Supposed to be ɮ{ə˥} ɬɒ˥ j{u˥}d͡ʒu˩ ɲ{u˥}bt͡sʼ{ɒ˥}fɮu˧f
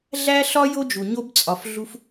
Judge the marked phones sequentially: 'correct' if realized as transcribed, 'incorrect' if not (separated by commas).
incorrect, incorrect, incorrect, incorrect